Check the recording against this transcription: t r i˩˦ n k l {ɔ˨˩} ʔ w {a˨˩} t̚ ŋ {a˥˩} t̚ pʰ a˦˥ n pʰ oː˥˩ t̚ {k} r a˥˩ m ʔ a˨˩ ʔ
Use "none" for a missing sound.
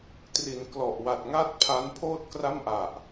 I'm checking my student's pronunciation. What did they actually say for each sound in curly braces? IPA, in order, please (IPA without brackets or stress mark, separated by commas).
ɔ˨˩, a˨˩, a˥˩, k